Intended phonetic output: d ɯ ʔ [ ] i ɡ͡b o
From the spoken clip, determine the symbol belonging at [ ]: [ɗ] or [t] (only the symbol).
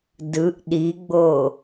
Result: ɗ